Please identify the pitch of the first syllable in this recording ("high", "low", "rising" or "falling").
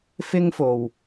high